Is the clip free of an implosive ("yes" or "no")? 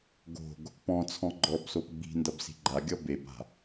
yes